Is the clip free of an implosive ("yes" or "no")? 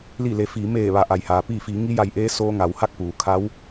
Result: yes